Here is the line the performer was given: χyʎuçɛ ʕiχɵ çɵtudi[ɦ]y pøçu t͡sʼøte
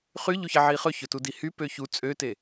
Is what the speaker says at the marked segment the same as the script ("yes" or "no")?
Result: no